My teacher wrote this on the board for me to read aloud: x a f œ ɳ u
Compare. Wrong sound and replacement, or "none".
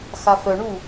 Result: none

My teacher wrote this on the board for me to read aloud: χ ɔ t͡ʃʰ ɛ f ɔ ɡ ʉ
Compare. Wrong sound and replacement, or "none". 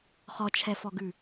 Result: none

